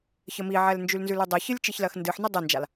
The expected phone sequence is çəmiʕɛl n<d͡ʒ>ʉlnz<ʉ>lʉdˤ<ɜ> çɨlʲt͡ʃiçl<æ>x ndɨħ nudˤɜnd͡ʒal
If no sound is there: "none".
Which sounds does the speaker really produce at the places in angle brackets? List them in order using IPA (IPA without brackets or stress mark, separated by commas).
d͡ʒ, ʉ, ɜ, ɜ